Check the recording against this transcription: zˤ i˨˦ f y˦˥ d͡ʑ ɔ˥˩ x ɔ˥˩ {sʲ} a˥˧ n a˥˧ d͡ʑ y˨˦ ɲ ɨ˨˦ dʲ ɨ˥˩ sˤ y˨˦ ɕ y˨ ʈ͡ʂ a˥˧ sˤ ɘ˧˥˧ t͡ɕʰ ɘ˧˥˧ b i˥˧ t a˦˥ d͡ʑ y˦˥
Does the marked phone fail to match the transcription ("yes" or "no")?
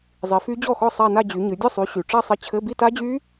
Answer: yes